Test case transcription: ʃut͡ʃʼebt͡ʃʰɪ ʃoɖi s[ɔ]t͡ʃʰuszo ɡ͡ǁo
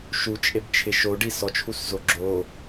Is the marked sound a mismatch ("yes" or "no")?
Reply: no